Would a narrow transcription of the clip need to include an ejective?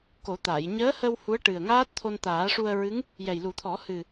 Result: no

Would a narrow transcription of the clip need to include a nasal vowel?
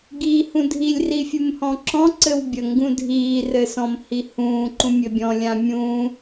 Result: yes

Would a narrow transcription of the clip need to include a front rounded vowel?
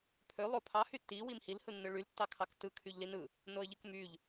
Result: yes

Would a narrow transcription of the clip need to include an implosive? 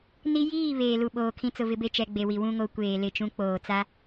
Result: yes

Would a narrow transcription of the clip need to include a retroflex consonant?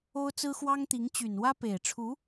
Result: yes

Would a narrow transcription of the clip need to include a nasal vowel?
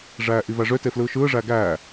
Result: no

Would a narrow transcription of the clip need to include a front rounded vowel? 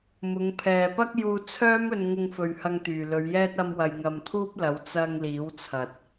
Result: yes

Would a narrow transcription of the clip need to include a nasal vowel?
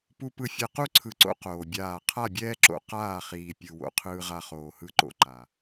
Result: no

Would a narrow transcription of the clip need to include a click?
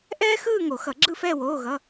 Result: yes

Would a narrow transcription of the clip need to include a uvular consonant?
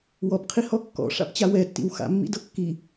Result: yes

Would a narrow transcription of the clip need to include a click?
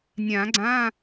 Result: yes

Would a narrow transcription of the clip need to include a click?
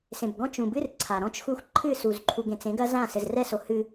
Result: yes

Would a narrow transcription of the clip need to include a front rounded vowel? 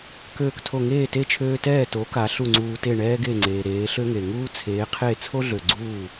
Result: yes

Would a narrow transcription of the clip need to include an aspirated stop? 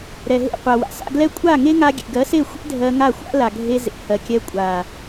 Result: no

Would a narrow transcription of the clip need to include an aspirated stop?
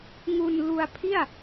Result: yes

